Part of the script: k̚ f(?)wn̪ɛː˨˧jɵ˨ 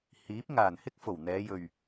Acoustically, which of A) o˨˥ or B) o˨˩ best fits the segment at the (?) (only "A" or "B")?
B